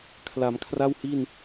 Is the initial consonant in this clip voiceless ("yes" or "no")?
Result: yes